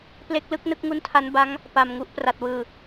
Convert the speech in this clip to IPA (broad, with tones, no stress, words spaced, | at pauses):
ple˦˥k̚lɯ˦˥k̚ nɯ˦˥k̚ŋu˦˥ntʰa˦˥nba˦˥ŋ | pa˨˩mŋu˥˩ʔ pra˨˩t̚wɯː˨˩